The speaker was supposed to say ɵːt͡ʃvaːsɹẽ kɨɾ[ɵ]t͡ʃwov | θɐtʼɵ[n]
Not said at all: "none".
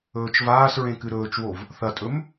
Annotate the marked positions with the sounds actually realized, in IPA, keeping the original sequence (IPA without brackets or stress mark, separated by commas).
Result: ɵː, m